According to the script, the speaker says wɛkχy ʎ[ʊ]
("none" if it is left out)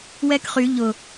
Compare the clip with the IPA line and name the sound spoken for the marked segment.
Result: ʊ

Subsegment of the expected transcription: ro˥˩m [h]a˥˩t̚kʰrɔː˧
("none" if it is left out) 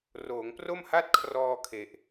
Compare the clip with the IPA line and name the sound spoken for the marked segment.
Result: h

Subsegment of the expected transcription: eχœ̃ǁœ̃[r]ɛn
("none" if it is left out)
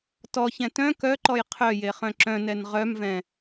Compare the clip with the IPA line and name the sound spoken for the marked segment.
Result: n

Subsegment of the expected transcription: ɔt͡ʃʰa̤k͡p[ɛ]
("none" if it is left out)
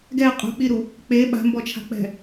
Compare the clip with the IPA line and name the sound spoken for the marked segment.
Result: ɛ̤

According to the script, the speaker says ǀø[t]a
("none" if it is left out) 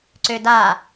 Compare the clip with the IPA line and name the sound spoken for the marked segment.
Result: d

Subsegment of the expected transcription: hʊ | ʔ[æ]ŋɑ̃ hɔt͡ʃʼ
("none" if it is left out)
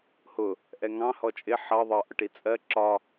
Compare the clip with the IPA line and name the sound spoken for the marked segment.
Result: ɛ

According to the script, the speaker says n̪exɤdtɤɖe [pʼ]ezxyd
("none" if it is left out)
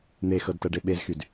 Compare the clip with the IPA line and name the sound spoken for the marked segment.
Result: ɓ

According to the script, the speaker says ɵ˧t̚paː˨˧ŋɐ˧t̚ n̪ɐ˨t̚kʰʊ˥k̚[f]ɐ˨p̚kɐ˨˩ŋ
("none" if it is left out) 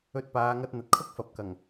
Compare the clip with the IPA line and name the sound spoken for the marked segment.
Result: f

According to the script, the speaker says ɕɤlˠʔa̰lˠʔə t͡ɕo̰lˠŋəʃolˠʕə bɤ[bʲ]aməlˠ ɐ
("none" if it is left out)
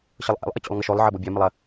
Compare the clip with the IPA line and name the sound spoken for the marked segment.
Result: bʲ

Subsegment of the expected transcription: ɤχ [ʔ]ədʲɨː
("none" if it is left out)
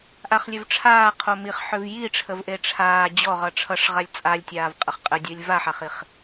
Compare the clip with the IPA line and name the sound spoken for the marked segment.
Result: qʼ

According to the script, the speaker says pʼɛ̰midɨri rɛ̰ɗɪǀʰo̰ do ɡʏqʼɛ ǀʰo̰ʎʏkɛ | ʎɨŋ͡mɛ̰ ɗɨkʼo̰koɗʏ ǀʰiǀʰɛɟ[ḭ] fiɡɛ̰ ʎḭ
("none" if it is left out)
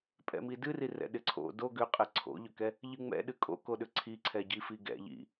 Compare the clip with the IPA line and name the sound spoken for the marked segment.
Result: i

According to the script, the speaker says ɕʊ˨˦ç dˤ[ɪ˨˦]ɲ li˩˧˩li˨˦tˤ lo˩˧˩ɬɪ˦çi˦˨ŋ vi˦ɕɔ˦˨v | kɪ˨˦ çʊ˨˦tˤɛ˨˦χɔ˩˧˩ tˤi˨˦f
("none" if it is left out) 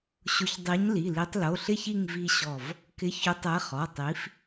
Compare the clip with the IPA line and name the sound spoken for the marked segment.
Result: i˨˦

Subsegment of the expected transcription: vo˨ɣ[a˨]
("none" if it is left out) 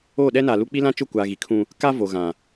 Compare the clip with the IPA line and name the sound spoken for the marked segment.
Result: ã˨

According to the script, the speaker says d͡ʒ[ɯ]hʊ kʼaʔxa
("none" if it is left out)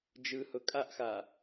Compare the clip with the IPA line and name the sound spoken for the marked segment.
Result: ɯ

